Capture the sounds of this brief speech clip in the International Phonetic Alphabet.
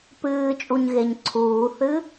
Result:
p ɨː t͡ʃʼ u ɲ ɣ e ɲ ǀʰ uː θ ɨ

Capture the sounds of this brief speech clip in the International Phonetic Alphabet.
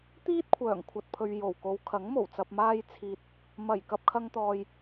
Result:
t̪ iː˥ t̚ kʷʰ œː˨˩ ŋ kʷʰ ɐ˨ t̚ pʰ ɵ˨ ɥ j o˨˩ w k o˨˧ w kʰ ɐ˨˥ ŋ m o˨˩ w t͡s ɐ˧ p̚ m aː˧ j t͡sʰ iː˨ t̚ | m ɐ˨˩ j k ɐ˧ p̚ kʰ ɐ˧ ŋ t̪ ɔː˨ j

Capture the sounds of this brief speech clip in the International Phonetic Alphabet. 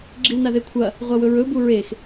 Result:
ɡ͡ǁ i w n a ð e kʷʰ ɐ | ʁʷ a w ɵ ɹ ɵ b u ɹ e x

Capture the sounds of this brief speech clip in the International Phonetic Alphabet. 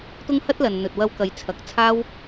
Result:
t̪ ʊ˥ ŋ h ɐ˥ t̚ l ɐ˨ n n̪ ɵ˨ t̚ w ɐ˧ w k ɐ˨˧ j t͡sʰ ɐ˨˥ k̚ t͡sʰ aː˥ w

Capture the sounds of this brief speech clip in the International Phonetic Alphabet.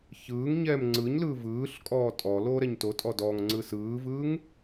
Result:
ç ɯː ŋ ɲ ɛː m ŋ͡ǀ ɯ ɲ l ɯː v ɯː ɬ kʼ ɔː tʼ ɔ l oː ɾ ɛ ɲ t o tʼ ɔ d ɔ ŋ ŋ͡ǀ ɯ s ɯː v ɯː ŋ

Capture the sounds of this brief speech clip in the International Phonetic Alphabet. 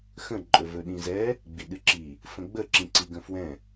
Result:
x ə̃ ǃʼ ɵ v ɵ ɗ ĩ z ɛ | ɡ͡b i ɗ ɨ ǁ i | f ə̃ ɡ͡b ə ǁ ĩ ǀ i ɡ ə̃ f w ɛ̃

